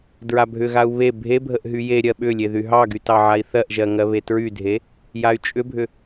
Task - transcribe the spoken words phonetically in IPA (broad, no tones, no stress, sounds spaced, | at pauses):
d ɹ a bʱ ʏ ɣ a u̯ β e bʱ e bʱ ə ʔ ɦ y j e ɾʲ ɜ ɓ ʏ lʲ e ð y ɦ ɑ ɡ y t ɑ ʕ a i̯ θ ɜ ʔ ʒ ɜ ŋ ɜ β e t ɹ y dʱ e | j a y̯ t͡ʃʼ ʏ bʱ ʏ